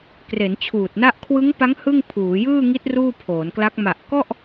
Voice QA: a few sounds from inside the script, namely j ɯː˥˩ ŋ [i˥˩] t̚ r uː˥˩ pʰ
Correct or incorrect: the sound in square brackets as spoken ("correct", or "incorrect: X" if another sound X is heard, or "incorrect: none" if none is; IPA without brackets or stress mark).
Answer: incorrect: i˦˥